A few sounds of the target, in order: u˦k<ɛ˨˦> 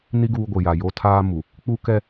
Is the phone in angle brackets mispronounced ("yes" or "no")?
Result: yes